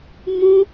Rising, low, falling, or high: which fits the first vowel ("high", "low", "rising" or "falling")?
high